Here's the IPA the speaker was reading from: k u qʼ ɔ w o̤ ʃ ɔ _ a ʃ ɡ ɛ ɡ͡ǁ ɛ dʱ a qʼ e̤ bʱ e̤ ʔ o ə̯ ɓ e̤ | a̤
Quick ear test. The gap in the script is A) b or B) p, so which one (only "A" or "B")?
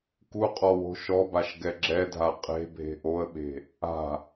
A